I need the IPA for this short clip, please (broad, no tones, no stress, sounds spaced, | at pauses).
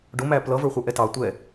ɖ ʊ m æ p l ʌ v ə˞ χʷ ə˞ ʔ ɛ t ɑ tʷ ɛ